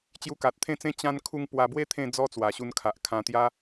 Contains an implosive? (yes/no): no